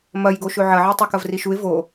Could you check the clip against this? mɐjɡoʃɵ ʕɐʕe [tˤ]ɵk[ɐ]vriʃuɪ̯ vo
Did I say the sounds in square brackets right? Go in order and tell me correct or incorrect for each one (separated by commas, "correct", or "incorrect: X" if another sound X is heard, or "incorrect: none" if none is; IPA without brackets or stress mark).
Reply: correct, correct